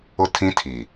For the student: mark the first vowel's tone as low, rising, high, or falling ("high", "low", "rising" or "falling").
falling